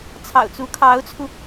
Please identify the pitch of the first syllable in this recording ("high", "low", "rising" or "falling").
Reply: low